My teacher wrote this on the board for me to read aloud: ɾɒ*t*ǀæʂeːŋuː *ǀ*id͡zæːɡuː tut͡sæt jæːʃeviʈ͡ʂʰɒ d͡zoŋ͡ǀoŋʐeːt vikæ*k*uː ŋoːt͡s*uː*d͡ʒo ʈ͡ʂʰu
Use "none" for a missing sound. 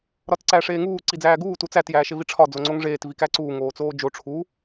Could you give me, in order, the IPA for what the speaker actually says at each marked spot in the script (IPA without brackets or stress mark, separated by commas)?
t, ǀ, ǀ, oː